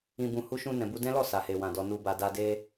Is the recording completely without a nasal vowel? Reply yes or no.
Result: no